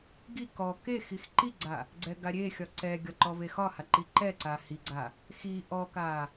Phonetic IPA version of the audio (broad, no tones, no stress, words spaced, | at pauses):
ɡi kɔ ke xixǃiɡ͡ǀa | ɡ͡ǀɛɡaɾʲe xʲɒǀɛɡʲɒ ǃɔvexɒha ǃiǃɛǀa hiɡ͡ǀa | xi ʔɔka